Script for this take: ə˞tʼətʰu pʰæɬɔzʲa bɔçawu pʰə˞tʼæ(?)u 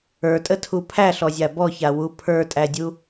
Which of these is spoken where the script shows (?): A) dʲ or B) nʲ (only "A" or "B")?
A